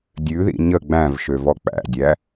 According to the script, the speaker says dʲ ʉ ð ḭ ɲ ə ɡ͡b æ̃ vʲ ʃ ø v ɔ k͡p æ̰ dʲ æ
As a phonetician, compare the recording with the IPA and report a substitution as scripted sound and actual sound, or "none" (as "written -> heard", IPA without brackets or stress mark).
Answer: vʲ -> v